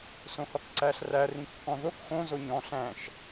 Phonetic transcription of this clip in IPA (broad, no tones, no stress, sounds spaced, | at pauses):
s õ h ɔ k ǀ æ ɬ r æ r ĩ kː ɔ̃ ð o k x õ z o ɲ ɔ̃ ɬ æ̃ ʃ